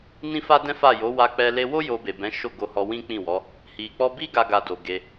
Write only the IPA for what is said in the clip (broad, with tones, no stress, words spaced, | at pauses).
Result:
nĩ˦fa˦dɛ̃˦fa˦˨ jo˨˦wa˧k͡pɛ˧ le˧wo˦ jo˧be˨bɛ̃˨˦ ʃo˦˨ɡo˧hɔ˧ wĩ˦k͡pĩ˦˨wɔ˨˦ | hi˨k͡pɔ˧bi˦ ɡa˦ɡa˧do˨ ɡe˧